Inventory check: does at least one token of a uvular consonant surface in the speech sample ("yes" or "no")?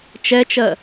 no